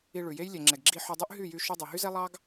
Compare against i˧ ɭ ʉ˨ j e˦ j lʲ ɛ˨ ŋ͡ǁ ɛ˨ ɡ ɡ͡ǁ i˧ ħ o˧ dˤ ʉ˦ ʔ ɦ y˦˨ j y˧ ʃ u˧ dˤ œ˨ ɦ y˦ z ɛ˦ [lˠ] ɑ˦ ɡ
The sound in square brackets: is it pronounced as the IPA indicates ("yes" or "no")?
yes